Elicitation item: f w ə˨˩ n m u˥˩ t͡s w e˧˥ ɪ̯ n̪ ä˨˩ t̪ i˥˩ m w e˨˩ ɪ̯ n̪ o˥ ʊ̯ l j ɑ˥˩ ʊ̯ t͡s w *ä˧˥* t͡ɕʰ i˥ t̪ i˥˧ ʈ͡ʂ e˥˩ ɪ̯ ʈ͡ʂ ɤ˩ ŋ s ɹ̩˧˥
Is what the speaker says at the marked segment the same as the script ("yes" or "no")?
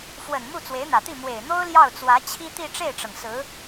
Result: yes